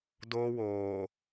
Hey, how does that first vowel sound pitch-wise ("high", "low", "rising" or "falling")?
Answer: high